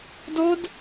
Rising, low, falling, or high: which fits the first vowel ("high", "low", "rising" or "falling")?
high